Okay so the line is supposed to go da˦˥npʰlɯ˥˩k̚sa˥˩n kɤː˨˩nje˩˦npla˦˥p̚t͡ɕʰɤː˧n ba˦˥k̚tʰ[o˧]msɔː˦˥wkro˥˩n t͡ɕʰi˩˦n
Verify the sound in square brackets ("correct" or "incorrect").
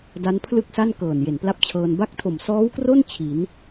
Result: incorrect